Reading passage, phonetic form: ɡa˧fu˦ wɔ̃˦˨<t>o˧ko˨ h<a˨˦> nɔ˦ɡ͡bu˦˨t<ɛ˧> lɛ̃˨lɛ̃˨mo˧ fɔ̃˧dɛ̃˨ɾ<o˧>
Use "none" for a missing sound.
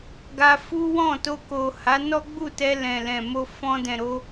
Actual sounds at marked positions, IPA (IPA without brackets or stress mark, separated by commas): t, a˨˦, ɛ˧, o˧